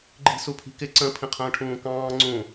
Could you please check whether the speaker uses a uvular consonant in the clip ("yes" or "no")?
yes